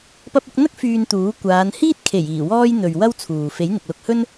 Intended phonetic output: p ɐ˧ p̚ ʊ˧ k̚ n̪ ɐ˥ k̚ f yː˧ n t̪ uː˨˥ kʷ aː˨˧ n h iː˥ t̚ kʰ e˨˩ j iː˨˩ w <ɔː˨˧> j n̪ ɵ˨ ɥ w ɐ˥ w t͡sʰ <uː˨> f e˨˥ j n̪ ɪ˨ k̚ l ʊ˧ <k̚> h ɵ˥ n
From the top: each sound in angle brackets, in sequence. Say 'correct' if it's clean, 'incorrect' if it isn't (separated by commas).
incorrect, correct, correct